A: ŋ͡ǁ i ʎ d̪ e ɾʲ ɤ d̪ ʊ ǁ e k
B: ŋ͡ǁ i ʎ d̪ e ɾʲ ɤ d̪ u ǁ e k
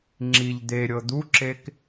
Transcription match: B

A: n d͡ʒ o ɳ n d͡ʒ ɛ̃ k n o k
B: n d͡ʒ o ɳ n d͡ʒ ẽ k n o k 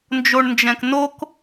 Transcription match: A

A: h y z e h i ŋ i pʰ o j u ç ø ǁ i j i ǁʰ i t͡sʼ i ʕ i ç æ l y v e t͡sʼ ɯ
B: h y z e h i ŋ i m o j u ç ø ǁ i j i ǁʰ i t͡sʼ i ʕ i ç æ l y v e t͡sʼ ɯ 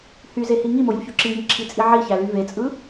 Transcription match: B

